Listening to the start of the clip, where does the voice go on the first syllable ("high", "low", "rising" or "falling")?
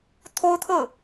high